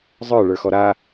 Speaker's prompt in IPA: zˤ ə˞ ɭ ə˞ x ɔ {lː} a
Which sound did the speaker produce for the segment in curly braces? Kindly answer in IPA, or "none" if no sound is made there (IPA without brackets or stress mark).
ɾ